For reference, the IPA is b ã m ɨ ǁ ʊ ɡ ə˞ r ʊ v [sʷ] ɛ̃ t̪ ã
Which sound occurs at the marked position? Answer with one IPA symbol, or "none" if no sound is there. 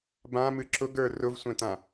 sʷ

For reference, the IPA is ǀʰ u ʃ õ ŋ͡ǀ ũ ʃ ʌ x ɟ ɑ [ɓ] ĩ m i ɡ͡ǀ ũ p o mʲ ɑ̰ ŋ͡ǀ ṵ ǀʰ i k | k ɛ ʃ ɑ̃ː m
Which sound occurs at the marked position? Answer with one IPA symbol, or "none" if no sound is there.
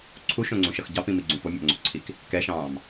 p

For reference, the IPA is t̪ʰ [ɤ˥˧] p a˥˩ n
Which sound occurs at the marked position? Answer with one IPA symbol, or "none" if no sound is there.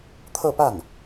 ɤ˥˧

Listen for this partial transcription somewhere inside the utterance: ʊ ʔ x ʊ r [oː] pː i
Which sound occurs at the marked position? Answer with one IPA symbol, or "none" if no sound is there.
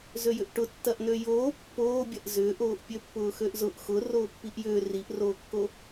oː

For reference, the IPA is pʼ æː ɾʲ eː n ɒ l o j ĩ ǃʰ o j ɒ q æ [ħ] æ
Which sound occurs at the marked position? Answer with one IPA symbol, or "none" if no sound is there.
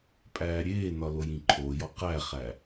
χ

